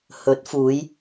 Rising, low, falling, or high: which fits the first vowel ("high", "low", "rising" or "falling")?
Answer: rising